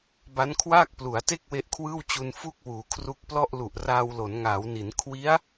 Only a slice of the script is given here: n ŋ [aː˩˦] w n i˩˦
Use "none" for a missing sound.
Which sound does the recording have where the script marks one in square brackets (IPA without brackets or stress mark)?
aː˩˦